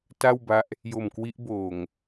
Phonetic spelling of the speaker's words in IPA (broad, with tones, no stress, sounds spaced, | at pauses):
t a˥˩ w b a˦˥ ʔ | j o˨˩ m k w i˦˥ ʔ b oː˨˩ ŋ